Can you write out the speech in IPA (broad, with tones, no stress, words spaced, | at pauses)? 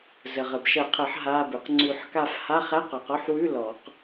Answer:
zə˩ʁə˩b ʃə˨˩˦qʰə˨˩˦ħ ɦa˧˥˧bʉ˩q ŋ͡ǀʉ˨˩˦ħka˦˨f ha˧˥˧χæ˧˥˧q ɔ˨˩˦q ɔ˧˥˧ħwʉ˧˥˧ lɔ˨˩˦q